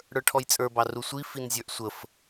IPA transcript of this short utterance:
ɽə˞ʈʰɔjt͡sʼə˞bɑ rusʷi finzʲə˞ʔsʷəf

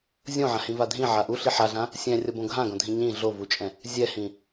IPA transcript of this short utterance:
zʲõʕãhĩva dʱĩʕa ʔuɬi ħaɮã | sʲɛ̃rʲʌbõ ɡʱãɡõdʱĩ ɲĩ ɮovut͡ʃʼɛ̃ | zʲɛhĩ

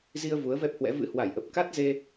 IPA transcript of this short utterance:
zi˧ə̯ vu˨˦ə̯vɛ˦˥p̚hwɛ̰˧˥ vɨ̰˧˥hwa˧˩jʔə˨˩p̚ ka˦˥t̚ ze˧

